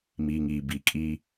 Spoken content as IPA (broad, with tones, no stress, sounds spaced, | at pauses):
m iː˨ ŋ iː˨ b i˨ kʼ i˦